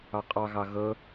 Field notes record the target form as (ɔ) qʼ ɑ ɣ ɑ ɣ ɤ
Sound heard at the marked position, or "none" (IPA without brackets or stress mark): ɑ